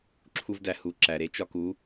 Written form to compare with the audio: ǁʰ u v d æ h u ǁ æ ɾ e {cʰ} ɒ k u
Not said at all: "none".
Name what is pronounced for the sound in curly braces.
t͡ʃ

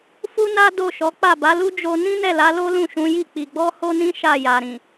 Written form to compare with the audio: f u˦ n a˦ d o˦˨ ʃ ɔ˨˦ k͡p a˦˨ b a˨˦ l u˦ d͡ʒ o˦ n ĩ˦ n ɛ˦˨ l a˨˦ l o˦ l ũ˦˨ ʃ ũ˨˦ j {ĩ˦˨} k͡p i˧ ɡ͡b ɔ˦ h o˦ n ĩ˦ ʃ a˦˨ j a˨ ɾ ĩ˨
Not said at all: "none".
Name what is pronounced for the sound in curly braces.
i˦˨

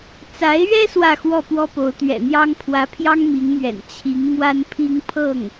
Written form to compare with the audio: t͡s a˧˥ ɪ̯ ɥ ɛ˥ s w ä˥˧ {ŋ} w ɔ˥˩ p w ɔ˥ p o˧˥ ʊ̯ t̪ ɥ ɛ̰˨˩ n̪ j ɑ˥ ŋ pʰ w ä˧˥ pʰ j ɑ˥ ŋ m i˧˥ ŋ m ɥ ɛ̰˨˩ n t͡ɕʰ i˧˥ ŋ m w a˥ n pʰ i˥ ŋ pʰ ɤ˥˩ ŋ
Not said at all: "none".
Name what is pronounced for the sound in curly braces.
x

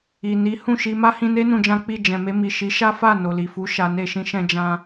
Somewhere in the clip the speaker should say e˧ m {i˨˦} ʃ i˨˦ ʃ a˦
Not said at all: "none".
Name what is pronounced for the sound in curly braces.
i˨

